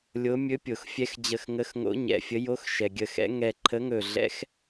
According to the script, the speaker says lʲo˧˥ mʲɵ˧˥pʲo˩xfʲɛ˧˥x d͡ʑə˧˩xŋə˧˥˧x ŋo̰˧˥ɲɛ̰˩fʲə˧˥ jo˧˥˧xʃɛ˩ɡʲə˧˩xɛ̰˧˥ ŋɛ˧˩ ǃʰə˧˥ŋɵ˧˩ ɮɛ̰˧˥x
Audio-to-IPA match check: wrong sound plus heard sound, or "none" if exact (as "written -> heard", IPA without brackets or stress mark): none